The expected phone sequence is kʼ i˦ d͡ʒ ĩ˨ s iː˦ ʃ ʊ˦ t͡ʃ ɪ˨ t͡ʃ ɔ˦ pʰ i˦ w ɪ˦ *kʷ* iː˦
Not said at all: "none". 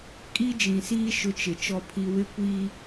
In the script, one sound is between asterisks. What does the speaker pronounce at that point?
kʷ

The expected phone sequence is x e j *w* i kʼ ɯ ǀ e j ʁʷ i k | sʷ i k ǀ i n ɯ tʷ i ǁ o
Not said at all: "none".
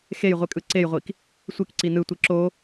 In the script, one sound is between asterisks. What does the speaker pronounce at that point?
ʁʷ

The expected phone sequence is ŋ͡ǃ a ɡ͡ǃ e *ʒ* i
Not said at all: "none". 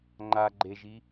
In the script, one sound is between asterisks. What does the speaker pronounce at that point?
ʒ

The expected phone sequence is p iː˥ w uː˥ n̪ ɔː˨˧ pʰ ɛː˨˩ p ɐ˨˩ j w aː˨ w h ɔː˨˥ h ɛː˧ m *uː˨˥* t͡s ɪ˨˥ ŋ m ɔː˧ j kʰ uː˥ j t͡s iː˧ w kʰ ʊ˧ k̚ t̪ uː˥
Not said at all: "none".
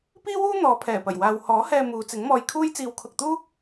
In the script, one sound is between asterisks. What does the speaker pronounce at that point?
uː˨˧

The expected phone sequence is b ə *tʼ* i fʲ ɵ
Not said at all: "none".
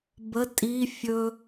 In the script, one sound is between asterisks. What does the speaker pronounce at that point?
tʼ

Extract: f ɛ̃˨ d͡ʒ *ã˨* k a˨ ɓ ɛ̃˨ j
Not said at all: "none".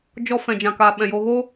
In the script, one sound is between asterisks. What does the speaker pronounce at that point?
ã˨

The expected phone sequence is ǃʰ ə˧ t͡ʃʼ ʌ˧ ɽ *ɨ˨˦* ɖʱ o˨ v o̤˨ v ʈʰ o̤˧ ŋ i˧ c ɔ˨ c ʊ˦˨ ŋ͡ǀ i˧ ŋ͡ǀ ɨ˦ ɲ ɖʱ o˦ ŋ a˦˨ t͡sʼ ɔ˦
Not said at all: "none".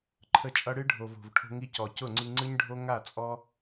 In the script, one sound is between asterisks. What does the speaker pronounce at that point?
ɨ˦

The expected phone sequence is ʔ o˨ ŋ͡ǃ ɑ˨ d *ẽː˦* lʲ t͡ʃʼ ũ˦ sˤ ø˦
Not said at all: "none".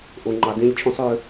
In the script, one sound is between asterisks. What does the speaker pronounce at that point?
ẽ˦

